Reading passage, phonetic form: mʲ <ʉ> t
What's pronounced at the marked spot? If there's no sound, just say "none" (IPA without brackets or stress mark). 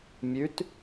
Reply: ʉ